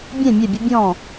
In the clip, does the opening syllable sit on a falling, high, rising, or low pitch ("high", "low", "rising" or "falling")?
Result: falling